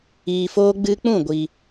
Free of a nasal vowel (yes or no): no